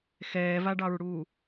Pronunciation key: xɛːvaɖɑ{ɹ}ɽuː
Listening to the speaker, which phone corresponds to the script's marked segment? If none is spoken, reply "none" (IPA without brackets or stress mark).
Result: ɹ